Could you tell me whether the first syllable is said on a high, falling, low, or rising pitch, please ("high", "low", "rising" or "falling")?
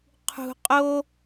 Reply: low